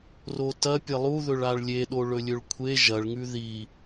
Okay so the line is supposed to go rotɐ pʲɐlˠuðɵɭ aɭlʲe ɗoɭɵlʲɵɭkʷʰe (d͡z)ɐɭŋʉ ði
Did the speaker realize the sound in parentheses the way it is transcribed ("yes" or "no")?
no